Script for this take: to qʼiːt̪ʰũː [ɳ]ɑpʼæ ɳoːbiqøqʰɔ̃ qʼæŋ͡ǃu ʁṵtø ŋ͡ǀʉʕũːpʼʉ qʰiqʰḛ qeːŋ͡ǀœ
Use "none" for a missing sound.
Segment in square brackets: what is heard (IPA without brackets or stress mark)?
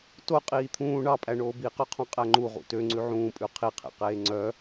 ɳ